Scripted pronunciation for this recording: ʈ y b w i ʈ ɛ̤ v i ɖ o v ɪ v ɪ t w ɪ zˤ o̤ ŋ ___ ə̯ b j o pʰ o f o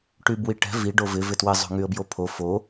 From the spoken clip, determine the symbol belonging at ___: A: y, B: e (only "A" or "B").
A